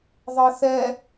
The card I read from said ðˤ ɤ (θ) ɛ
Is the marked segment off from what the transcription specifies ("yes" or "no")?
no